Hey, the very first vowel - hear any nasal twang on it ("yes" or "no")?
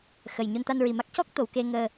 no